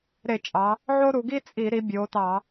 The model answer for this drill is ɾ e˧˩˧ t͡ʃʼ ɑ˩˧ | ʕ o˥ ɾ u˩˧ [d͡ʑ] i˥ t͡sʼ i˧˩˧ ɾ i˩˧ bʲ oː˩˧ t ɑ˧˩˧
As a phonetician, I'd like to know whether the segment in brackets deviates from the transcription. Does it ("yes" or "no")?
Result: yes